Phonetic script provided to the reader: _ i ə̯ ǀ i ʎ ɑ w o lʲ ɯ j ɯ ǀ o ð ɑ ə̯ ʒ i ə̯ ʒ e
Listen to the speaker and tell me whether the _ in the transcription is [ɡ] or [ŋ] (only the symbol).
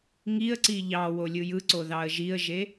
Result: ŋ